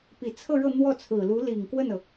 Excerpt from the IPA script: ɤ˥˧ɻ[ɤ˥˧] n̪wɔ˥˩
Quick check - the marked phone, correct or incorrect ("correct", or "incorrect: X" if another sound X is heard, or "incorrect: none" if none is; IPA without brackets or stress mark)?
correct